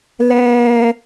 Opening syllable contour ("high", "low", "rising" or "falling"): high